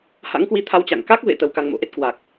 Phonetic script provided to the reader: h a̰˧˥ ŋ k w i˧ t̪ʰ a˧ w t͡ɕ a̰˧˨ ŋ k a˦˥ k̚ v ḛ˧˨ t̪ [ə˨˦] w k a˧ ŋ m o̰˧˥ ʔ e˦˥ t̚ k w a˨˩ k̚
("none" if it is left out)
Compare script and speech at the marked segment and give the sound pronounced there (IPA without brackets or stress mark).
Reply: ə˧